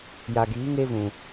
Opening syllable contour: low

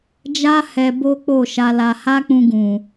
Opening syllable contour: high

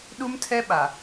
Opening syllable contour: high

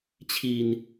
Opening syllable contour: low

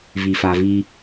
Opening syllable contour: low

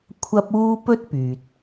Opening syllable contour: high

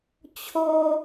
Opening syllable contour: low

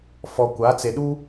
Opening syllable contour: low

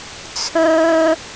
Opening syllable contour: high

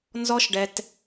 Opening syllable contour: high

